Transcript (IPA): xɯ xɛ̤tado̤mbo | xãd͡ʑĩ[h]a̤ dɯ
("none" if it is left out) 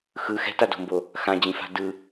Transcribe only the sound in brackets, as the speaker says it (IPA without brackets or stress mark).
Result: f